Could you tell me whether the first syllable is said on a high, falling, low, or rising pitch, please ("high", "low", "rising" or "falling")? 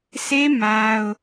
high